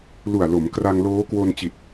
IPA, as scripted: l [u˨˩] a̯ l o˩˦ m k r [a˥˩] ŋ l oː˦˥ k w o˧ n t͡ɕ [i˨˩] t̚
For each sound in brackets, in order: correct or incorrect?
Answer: correct, incorrect: a˧, correct

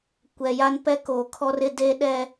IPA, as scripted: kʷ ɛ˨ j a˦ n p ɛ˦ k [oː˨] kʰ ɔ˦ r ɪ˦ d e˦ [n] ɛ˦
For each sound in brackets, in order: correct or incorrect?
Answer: correct, incorrect: ɗ

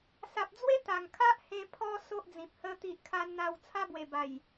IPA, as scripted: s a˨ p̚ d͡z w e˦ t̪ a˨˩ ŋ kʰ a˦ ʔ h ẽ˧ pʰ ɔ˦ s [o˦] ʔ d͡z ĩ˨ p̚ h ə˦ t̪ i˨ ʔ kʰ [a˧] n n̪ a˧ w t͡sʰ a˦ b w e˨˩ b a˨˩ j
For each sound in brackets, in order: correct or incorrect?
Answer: correct, correct

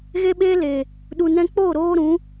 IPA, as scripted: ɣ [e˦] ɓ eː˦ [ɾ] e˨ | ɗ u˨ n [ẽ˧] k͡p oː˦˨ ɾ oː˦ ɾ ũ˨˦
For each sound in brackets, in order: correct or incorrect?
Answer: correct, incorrect: l, incorrect: ɛ̃˧

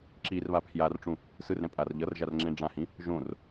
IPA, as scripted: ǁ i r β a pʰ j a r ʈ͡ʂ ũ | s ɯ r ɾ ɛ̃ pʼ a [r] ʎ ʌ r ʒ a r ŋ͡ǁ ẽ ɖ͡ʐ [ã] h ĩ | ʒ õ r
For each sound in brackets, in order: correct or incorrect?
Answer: correct, correct

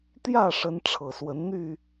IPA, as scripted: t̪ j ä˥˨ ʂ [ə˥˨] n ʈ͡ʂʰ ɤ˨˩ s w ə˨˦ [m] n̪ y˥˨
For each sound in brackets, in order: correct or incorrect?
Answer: incorrect: ə˨˦, incorrect: n

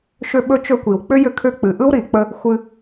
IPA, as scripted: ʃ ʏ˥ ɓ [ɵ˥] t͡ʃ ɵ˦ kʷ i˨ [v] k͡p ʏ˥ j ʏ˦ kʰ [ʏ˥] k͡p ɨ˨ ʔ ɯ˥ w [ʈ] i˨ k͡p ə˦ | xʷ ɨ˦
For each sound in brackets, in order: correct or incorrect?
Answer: correct, incorrect: w, incorrect: ʏ˦, incorrect: ɾ

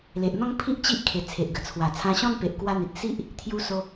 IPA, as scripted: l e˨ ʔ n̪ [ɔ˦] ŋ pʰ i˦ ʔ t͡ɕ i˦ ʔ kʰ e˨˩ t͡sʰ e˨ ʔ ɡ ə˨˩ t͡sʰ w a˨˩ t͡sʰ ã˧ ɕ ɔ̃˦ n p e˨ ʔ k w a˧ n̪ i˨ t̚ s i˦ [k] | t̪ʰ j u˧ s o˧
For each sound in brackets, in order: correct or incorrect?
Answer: incorrect: ɔ̃˦, incorrect: ʔ

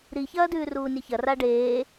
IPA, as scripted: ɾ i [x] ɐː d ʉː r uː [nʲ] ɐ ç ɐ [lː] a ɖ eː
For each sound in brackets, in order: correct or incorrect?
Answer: incorrect: ç, correct, incorrect: r

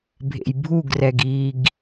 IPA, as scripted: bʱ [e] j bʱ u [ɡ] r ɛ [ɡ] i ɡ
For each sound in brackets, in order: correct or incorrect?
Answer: incorrect: ḛ, correct, correct

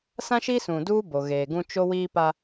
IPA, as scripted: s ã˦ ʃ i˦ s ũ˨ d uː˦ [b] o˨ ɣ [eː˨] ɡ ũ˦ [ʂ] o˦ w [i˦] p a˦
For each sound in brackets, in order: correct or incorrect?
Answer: correct, correct, incorrect: t͡ʃ, incorrect: iː˦

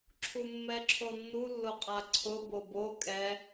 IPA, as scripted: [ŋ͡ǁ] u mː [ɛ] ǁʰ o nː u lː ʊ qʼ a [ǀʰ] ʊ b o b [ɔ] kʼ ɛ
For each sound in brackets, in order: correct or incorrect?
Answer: incorrect: ǁʰ, correct, correct, incorrect: o

